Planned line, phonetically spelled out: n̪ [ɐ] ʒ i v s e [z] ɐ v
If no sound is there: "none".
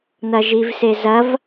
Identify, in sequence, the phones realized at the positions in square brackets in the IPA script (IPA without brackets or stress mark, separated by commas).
ɐ, z